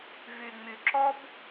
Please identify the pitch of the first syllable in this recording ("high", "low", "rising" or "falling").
low